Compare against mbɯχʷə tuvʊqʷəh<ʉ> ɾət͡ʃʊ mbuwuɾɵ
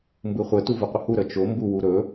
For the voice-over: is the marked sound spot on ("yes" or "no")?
no